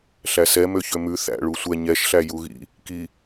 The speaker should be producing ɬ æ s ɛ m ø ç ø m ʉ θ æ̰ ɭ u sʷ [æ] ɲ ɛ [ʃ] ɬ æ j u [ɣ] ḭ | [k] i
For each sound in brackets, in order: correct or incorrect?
incorrect: ɛ, correct, correct, correct

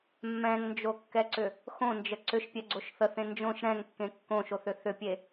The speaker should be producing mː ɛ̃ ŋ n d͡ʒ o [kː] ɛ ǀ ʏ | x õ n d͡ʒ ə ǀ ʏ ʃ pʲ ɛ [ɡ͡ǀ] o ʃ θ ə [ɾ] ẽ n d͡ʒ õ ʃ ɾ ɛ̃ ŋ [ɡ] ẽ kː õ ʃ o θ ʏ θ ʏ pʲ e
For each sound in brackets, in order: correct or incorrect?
correct, correct, incorrect: θ, incorrect: kː

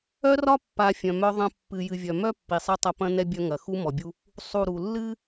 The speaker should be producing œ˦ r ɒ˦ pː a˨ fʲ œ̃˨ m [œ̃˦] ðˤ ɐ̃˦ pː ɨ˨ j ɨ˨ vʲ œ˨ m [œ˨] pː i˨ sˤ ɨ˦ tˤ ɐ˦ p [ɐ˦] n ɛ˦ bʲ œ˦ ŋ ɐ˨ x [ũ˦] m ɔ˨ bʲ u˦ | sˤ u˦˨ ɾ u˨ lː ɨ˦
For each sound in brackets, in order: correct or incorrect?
incorrect: œ˦, incorrect: œ˦, incorrect: ɐ̃˦, incorrect: u˦

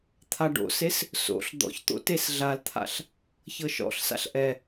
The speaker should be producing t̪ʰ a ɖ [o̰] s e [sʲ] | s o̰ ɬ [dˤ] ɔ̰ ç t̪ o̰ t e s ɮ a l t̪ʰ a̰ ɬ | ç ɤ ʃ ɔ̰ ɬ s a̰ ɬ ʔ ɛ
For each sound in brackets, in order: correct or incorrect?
correct, incorrect: s, incorrect: d̪

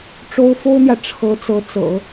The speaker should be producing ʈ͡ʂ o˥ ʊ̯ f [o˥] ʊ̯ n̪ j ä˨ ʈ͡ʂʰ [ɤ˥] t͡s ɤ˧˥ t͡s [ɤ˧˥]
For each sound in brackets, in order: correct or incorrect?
correct, incorrect: ɤ˧˥, incorrect: ɤ̰˨˩˦

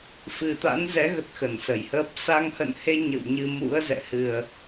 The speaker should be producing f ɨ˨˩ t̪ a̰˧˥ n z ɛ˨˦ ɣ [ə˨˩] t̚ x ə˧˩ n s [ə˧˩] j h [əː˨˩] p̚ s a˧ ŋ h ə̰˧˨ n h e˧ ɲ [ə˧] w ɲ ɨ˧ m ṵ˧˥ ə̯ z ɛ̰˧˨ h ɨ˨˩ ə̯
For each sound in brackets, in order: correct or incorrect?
incorrect: ə˦˥, correct, incorrect: əː˦˥, incorrect: ə̰˧˨

